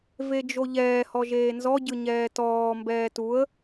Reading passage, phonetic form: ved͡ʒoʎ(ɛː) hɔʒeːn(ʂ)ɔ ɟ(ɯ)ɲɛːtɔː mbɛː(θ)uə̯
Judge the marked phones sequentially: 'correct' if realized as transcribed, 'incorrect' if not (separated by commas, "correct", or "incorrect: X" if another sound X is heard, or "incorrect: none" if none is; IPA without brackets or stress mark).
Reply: correct, incorrect: z, correct, incorrect: t